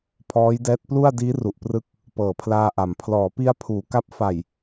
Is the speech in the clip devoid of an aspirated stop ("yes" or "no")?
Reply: no